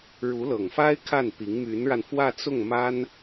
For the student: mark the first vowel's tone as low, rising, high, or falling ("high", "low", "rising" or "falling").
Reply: rising